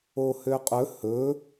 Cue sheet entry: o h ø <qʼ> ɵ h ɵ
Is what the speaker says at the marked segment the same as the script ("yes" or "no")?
yes